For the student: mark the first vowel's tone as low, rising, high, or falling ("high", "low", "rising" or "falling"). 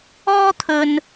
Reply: high